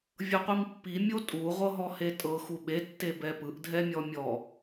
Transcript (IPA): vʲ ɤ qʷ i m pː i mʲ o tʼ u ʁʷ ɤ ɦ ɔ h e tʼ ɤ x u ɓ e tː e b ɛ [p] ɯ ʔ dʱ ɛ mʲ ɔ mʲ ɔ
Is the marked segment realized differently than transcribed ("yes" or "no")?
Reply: no